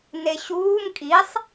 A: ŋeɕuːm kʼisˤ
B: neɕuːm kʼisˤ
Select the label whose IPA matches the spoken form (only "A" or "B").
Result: B